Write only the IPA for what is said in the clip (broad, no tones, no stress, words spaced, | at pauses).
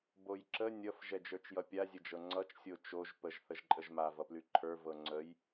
bojǁə nʲʌf ʒɛd͡ʒə˞t͡ʃjʌpʲa zʲəd͡ʒɤŋ͡ǀʌt͡ʃ sʲot͡ʃoʒ pəʒ θəʒǃʼəʒma vʌplyǃʰə˞ vɤŋ͡ǀəj